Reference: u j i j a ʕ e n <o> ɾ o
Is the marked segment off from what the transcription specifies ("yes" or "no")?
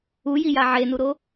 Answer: yes